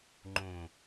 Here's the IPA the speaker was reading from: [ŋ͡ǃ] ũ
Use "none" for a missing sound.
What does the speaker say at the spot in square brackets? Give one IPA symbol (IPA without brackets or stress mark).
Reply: ŋ͡ǃ